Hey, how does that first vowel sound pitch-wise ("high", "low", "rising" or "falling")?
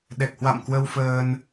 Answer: low